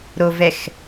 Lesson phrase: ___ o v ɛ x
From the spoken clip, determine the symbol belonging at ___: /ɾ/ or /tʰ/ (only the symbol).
ɾ